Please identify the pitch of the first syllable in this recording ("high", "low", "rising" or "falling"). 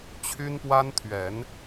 high